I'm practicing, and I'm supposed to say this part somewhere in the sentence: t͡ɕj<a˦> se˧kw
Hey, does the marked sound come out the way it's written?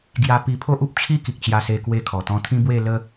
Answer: no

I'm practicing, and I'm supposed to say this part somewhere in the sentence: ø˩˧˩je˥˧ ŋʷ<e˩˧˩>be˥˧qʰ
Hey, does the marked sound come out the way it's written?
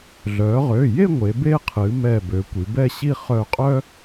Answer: no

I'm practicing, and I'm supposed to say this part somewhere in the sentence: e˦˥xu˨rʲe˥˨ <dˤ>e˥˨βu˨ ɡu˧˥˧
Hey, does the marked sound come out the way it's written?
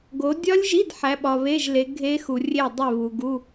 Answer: yes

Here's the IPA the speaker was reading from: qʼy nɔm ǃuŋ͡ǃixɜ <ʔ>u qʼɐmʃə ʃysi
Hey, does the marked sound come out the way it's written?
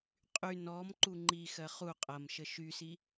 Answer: no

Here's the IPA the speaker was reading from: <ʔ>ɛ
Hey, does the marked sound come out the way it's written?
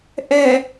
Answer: yes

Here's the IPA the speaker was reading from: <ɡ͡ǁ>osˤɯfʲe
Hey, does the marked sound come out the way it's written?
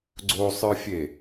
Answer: no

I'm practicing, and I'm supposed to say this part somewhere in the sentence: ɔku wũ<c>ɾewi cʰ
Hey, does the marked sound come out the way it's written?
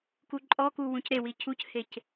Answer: yes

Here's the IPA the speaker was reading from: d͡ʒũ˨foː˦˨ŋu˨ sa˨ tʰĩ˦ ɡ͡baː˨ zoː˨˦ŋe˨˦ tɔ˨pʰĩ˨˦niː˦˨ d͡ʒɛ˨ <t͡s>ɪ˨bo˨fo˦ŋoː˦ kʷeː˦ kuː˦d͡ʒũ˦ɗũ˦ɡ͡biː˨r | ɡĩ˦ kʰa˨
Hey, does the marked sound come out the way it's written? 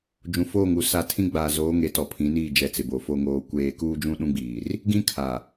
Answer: yes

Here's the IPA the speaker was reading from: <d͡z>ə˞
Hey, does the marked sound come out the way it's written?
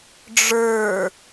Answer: no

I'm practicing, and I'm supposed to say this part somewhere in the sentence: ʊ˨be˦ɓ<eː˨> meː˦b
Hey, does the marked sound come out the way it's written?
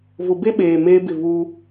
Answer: yes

